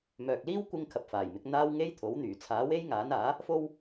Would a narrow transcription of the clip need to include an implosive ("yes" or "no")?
no